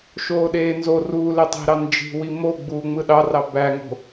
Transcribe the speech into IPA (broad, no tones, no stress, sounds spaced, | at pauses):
ʃ oː ɗ eː n z o r uː l e tˤ e̤ ɾ ɑ n d͡ʒ i̤ w i m o ɡ͡b uː ŋ͡m ɯ ɗ ɑ r ɑ b æ ŋ o̤